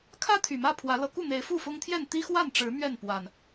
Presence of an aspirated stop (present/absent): present